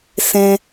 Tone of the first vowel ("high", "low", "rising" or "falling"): high